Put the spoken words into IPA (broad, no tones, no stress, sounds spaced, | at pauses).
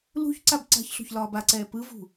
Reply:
l ṳ ç ǀ a b ǀ a̤ ç ɬ o̤ ç l ɒː b a ǀ ɛː p ɯ v ṳ